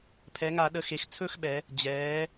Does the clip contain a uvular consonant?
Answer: no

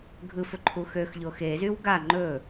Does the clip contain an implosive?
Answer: no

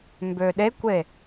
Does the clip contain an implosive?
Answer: yes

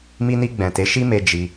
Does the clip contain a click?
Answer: no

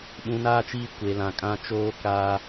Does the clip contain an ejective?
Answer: yes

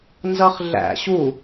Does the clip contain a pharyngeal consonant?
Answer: no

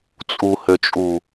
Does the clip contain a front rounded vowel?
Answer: yes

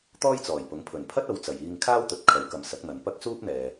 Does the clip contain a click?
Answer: no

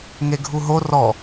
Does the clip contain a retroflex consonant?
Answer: no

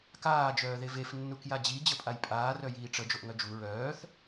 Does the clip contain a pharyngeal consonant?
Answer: no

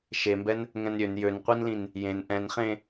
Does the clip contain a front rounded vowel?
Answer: yes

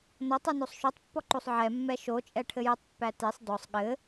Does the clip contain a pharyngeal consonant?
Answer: yes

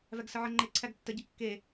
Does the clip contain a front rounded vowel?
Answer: no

